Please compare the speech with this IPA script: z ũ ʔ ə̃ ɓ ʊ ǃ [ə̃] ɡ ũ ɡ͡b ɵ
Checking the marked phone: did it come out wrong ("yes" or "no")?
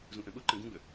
no